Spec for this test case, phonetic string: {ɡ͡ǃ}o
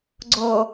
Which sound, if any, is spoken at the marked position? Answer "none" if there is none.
ɡ͡ǀ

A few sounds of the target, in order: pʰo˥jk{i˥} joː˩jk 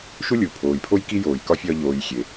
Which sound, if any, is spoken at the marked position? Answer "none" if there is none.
i˥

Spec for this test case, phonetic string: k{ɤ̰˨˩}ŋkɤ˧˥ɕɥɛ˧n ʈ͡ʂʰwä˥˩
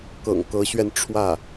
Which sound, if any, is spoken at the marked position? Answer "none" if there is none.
ɤ̰˨˩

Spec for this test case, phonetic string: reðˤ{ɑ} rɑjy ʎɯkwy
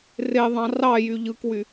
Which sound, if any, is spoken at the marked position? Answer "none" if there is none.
ɑ̃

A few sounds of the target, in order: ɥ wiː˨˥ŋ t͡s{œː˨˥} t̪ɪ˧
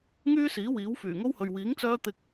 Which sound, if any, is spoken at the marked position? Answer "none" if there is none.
œː˥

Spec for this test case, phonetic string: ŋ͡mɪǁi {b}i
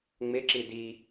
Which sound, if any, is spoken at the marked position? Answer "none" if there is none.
d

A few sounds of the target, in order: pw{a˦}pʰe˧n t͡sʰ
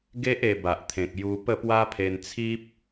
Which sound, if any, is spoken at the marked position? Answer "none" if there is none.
a˦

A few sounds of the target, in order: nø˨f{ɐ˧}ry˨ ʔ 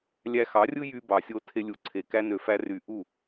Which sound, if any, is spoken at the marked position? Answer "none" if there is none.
æ˧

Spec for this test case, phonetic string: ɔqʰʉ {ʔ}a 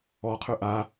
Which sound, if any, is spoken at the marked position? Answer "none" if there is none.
ʔ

